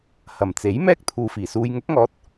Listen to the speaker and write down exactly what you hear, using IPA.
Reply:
h ɐ˨˩ m t͡s e˨˥ j m ɛː˥ k̚ t̪ʰ uː˨ f iː˨˩ s uː˧ j ŋ ʊ˨˥ k̚ ŋ ɔː˨˥ t̚

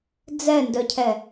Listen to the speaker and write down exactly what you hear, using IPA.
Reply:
d͡z ɛ n d œ cʰ ɛ

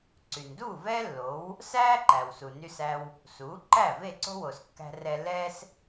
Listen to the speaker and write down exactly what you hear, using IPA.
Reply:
ǀ y˩ n d uː˥˩ v ɛː˥ lː o˩˥ w | s æː˥ ǃ æ˩ w s u˩ n y˧ s æ˧ w | s uː˩˥ ǃ æ˥˩ v e˥˩ ǀ o̤˥ w o˩ s kː æ̤˧ r ɛ˧ lː ɛː˥ s

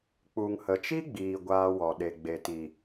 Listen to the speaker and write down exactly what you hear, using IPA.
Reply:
k͡p u˨ ŋ h ə˨ t͡ʃ i˦ ɡ͡b iː˨ ɡʷ aː˧ w ɔ˨ ɗ e˨ ɡ͡b e˨ t i˨

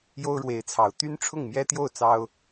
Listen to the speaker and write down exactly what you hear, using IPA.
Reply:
j o˥ ʊ̯ ɻ w e˧˥ ɪ̯ t͡sʰ ɑ˨˩ ʊ̯ t̪ y˥ n ʈ͡ʂʰ ʊ˥˩ ŋ m j ɛ˥ t̪ j o˥˩ ʊ̯ t͡s ɑ˥ ʊ̯

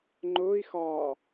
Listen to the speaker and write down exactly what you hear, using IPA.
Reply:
ŋ͡ǃ ʊː i̯ x ɒː

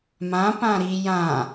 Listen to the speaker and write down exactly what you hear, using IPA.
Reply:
m ã p ã ɾ i j ã

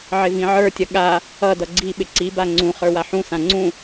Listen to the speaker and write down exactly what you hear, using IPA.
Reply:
ʕ ɪ v ĩ ʕ ə˞ tʲ ʌ ɠ a | ʌ d ʌ ɡ͡ǀ i ɓ ɪ ǀ i b a ŋ͡ǀ ũ χ ə˞ w a ħ ũ s ã ŋ͡ǀ ũ

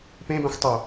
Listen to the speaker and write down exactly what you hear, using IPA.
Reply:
p ẽ b ɛ̃ xʷ tˤ o

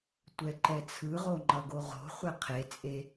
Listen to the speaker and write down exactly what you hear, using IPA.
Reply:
tʷ ɛ ǃ ɛ t͡sʰ ɯ ʁ o ŋ͡ǃ ʌ ɡ o ʁ o̤ χʷ ɛ qʰ e t͡sʼ e

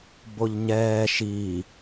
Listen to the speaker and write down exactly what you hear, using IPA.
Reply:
b o ʎ ɲ ɛː ʃ i

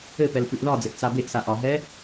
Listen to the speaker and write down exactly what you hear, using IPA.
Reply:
ɘ p ɛ l f ʉ ʔ ð ɒ d͡z ɘ ʔ t͡s a b e ʔ s a ʔ ɒ ɦ ɛ

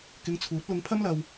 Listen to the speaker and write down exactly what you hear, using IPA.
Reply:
k ɪ˧ ŋ t͡sʰ uː˨˥ t̚ l ʊ˧ ŋ pʰ ɐ˥ m l ɐ˧ w

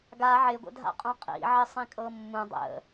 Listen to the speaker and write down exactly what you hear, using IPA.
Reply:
ɡ a ʕ ɪ ɡʷ ə̰ dʱ a̰ qʼ õ qʼ ḭ ʕ ɪ sˤ ĩ kʼ ɤ mː ũ dˤ ə̰

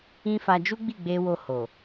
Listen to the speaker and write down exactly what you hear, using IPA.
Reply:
ĩ˦ f a˧ d͡ʒ u˦ ɡ͡b i˦˨ ɡ͡b e˧ w o˧ h o˨

